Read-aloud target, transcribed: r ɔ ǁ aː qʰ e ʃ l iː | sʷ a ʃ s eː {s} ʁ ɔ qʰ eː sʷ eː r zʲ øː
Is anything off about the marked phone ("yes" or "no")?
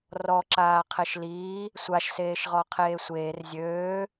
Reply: yes